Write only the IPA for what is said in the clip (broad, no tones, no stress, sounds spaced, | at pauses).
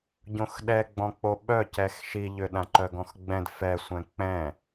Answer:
ɟ õ x ɗ ɛ ɡ͡b ɔ̃ k͡p o ɓ œ c ɛ x ʃ i ʎ ʏ ɗ ã ǃ œ ɡ ɔ̃ x ɡ͡b ɛ̃ d f ɛ sʷ ɛ̃ k͡p ɛ̃